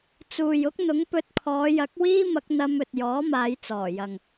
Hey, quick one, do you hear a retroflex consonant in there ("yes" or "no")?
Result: no